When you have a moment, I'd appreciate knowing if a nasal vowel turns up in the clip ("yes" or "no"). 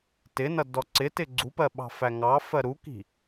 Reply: no